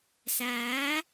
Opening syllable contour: rising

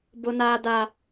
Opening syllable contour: high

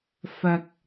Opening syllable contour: low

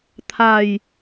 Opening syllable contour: falling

